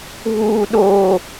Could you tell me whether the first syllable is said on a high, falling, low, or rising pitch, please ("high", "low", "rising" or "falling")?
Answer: high